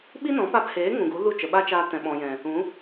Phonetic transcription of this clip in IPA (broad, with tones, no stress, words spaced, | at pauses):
ɓi˦nɔ̃˨˦pa˧pheː˨˦ ŋũ˨ɡu˨˦ lu˦˨t͡ʃə˨ɓa˦t͡ʃaː˧ tɛ̃˨ɓɔ̃˨jɛ̃˨ | ũ˨˦